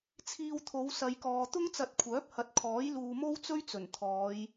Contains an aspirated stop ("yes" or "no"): yes